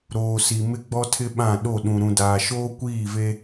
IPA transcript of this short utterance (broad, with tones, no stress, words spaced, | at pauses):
ɾoː˨si˨ mɪ˦ɡ͡bɔ˦tʰɪ˦ɓã˦˨ ɗo˦˨ɗũ˨ ɾũ˨daː˨ ʃoː˦kʷiː˦˨ve˦